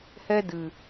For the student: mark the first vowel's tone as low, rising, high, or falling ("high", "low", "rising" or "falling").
high